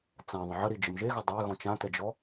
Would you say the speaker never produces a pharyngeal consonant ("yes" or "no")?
no